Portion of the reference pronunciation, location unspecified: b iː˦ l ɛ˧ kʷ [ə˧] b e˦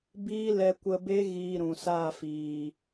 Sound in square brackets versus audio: correct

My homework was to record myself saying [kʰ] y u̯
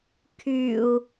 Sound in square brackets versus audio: correct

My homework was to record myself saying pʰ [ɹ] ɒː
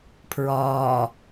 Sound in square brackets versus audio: correct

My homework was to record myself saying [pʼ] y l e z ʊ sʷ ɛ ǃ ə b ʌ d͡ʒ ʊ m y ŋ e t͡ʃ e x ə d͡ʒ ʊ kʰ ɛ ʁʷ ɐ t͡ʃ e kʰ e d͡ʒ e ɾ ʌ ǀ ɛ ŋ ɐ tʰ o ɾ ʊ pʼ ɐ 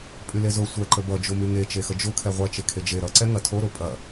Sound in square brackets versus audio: correct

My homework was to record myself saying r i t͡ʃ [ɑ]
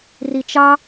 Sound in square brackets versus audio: correct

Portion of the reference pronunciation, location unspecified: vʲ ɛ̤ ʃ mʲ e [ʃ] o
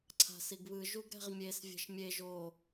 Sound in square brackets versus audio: incorrect: ʒ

